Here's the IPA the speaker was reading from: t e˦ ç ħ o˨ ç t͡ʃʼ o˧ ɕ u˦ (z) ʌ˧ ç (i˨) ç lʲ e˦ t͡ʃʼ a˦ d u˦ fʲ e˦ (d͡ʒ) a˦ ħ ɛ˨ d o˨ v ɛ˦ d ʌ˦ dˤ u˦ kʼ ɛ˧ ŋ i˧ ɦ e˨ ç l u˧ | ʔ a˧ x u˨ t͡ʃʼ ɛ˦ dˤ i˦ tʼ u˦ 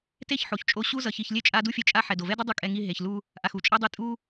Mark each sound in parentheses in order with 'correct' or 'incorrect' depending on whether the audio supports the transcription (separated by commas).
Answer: correct, incorrect, incorrect